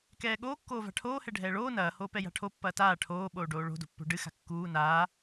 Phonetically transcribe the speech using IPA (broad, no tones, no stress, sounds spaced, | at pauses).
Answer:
k ɛː ɠ oː kː oː v a̤ ʈʰ oː h ɛ ɖʱ ɛː ɭ oː n ɐː h oː p ɛ j a̤ ʈʰ o pː ɐː t aː ʈʰ oː ɓ oː ɖ oː ɭ o̤ d o̤ pː o̤ ɖ ɨ x a̤ kː uː n aː